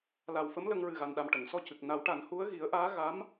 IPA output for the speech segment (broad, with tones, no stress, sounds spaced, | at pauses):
l a˨˩ w f ə˧˥ m l ə˧ ŋ ɹ ɨ˨˩ ɣ a˨˩ n ɗ a˨˩ m ʈ ə˨˩˨ ŋ s ɔ˧ c ɨ˨˩ k̚ n a˨˩˦ w ʈ a˨˩˦ n h u˧˥ ə̯ ɣ i˨˩˦ ə̯ ʔ aː˧˥ ɣ a˧˥ m